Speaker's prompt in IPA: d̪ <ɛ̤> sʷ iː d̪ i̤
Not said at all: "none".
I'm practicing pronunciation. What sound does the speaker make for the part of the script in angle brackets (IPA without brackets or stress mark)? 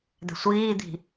ɛ̤